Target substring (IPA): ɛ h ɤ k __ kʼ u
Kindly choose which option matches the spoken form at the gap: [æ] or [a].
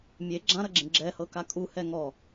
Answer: a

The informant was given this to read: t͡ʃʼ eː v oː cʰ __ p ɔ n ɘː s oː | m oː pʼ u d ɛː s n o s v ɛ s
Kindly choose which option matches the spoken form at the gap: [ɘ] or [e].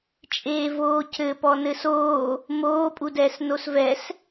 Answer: ɘ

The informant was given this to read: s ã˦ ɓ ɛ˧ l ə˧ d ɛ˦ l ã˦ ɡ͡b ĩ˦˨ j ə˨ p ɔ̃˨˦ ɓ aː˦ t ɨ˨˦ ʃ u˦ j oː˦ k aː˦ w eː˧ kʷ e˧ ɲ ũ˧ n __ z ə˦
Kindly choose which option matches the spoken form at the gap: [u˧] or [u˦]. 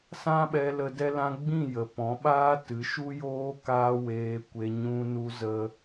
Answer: u˦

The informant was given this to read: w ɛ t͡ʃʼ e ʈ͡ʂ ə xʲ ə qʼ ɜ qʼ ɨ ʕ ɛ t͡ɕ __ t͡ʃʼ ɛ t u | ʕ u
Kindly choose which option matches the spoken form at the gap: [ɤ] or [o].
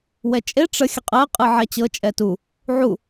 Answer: ɤ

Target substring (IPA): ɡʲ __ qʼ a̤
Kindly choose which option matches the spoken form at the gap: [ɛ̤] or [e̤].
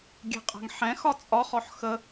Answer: ɛ̤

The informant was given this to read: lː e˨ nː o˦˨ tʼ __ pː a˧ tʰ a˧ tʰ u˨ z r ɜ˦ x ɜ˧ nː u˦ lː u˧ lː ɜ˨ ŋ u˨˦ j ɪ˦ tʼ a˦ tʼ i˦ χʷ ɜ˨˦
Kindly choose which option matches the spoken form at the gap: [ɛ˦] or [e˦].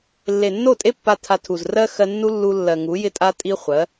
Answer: e˦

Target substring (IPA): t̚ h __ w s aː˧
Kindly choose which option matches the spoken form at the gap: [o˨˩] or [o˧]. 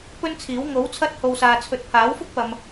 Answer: o˧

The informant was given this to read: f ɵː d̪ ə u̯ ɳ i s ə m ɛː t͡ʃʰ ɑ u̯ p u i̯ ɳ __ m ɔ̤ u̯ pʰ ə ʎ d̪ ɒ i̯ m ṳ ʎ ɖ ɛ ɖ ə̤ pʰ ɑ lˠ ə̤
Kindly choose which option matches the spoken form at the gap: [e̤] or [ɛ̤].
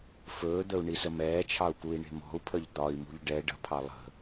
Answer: e̤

